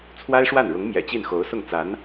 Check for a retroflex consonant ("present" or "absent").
present